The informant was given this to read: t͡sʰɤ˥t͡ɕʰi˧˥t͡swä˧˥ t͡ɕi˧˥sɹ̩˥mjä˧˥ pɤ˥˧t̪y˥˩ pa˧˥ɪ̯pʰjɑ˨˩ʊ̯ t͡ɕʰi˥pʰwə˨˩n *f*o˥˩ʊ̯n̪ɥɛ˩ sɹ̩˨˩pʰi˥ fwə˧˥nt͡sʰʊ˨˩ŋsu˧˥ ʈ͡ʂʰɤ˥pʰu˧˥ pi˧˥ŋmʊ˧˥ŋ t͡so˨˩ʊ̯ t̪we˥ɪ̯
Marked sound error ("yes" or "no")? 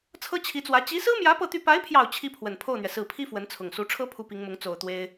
yes